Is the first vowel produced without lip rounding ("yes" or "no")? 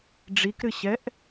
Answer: yes